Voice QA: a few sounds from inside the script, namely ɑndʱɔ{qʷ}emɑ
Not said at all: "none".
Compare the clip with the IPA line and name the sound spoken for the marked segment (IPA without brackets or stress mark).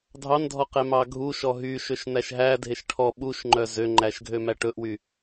q